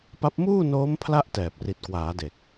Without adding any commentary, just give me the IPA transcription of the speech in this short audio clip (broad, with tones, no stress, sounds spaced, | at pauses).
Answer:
p a˦˥ p̚ m uː˥˩ n oː˦˥ m pʰ l a˥˩ ʔ t ɛː˨˩ p̚ r i˨˩ t̚ k w aː˩˦ d e˨˩ k̚